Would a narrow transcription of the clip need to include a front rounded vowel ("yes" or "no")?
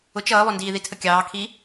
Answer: no